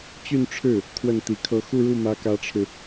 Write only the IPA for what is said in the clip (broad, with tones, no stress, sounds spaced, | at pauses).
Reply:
t͡ɕ y˥˧ n ʈ͡ʂʰ ɻ̩˥˩ | kʰ w ə˥˩ n t̪ i˧˥ kʰ ɤ˥˧ x u˥˧ ɻ u˥˩ m ä˥ k ä˥ ʈ͡ʂʰ ɻ̩˨